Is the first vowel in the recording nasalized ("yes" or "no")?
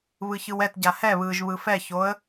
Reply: no